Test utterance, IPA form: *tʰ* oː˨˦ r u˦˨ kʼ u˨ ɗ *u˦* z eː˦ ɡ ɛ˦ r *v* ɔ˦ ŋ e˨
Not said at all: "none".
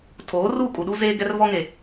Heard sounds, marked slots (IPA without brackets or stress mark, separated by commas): tʰ, u˦, v